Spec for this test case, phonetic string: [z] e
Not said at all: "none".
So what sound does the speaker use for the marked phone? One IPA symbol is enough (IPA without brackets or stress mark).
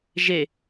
ʒ